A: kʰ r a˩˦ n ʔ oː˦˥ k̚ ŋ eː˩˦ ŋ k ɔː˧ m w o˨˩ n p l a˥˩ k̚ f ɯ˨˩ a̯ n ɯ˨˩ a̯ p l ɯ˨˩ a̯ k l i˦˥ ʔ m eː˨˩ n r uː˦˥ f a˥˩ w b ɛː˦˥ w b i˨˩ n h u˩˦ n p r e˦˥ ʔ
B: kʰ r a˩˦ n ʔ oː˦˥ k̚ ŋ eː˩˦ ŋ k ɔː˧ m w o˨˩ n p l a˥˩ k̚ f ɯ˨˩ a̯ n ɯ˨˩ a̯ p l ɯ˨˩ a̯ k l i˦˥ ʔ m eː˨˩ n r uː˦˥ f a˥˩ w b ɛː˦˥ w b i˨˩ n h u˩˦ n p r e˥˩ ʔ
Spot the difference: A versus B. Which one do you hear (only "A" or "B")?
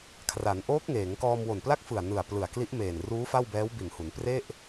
B